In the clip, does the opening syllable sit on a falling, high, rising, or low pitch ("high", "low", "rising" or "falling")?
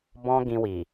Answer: high